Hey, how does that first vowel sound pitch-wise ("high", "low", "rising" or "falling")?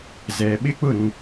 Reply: low